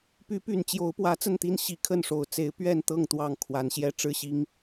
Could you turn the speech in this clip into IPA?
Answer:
py˨˦py˨˩nt͡ɕjo˨˦ʊ̯ pwä˨˦t͡sə˥˨nt̪i˦n ɕi˨˦kʰə˥˨nʂo˨˩ʊ̯ t͡se˨˦ɪ̯pɥɛ˥˨nt̪ɤ˥˨ŋ t̪wɑ˥˨ŋkʰwa˨˦nɕjɛ˥˨ ʈ͡ʂɻ̩˥˨ɕi˦ŋ

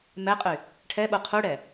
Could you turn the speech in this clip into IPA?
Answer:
mɛqʼy | ʈʰɛɓu qʰuɽɛ

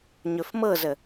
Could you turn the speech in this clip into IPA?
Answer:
ɲɵfmɤzə

